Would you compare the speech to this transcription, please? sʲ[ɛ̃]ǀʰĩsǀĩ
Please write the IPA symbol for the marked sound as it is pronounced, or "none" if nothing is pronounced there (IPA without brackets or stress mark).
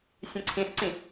ɛ̃